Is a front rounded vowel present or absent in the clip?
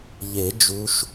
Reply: absent